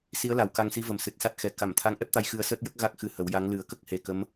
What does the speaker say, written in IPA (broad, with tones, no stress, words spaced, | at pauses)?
si˧˥ə̯la˨˩w ka˧ŋsi˧˥və˨˩m sɨ˨˩t̚sa˦˥t̚xɛ˨˩˦ ka˨˩˨m t̪ʰa˧˥ŋʔɛ˦˥p̚t̪a˧˥j xɨ˧ə̯səː˦˥t̚jə˦˥k̚ ɣa˦˥k̚xɨ˧hə˨˩˦wja˧˥ŋ lɨ˨˩˦ə̯kə˦˥k̚he˨˩ kə˧˥m